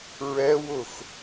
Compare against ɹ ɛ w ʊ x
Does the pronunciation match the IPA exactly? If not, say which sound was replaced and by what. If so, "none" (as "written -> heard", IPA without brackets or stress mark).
none